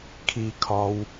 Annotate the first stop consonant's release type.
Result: aspirated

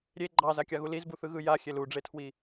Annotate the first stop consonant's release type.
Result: click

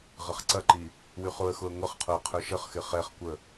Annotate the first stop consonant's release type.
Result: click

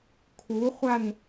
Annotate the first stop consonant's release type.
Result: aspirated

